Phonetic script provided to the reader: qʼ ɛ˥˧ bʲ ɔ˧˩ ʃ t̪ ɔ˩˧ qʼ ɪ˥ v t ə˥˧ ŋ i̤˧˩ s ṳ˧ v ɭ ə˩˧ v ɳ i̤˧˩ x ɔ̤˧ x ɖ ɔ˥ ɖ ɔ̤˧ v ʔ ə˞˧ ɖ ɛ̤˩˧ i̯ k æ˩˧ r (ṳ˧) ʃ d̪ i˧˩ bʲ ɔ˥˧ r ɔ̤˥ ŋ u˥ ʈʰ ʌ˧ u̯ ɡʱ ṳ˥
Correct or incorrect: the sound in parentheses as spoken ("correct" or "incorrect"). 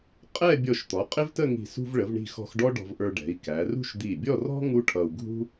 incorrect